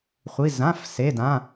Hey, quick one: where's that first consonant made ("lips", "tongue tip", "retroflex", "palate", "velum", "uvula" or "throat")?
uvula